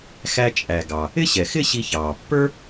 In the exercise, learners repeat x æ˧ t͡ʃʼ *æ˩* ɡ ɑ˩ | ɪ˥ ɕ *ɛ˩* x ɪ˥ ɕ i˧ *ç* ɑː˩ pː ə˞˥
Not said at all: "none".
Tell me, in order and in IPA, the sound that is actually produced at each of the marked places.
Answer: æ˩, ɛ˩, ç

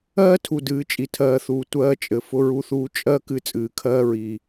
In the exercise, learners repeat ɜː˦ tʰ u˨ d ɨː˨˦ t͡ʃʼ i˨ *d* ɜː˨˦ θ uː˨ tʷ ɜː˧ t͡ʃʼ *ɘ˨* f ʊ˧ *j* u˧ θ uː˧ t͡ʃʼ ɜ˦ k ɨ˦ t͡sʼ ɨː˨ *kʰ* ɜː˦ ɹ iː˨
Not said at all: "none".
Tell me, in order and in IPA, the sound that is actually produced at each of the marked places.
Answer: tʰ, ɘ˨, ɹ, kʰ

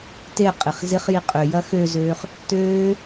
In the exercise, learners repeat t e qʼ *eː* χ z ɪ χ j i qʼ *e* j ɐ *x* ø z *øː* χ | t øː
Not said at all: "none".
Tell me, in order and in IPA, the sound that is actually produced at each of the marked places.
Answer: e, ø, x, øː

